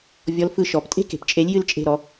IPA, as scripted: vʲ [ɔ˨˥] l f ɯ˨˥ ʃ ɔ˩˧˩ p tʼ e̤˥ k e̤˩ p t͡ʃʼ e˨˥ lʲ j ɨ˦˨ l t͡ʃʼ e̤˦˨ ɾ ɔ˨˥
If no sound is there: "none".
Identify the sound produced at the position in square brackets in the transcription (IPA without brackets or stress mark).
ɔ˨˥